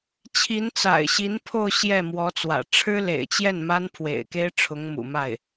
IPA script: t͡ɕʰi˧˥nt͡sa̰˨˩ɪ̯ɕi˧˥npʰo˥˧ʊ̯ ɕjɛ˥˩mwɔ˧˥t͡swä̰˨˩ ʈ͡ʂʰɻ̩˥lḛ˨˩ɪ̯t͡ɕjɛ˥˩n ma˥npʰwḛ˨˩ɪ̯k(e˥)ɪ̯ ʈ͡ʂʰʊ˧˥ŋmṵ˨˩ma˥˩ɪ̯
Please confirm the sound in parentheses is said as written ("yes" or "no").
yes